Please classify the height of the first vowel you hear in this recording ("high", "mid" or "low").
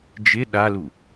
high